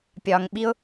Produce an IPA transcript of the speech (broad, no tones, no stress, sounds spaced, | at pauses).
pʲ ɒ ŋ ɓ i ʊ̯